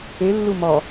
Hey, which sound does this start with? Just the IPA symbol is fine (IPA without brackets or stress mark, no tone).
e